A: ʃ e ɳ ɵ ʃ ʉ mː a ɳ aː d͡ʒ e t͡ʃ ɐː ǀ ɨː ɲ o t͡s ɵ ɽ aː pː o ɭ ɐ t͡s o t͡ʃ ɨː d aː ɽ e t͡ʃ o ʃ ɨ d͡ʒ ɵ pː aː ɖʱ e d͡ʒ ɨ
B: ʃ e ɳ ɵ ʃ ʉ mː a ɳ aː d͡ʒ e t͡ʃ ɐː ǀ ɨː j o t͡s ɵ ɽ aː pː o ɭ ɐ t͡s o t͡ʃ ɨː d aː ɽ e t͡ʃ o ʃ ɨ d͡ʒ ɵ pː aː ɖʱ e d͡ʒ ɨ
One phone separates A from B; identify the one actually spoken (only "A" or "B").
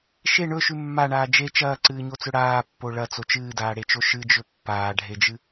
A